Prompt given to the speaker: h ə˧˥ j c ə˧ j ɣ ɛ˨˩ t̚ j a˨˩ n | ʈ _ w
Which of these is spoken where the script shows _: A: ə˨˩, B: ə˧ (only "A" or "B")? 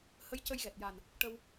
B